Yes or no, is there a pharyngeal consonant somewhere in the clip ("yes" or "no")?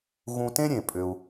no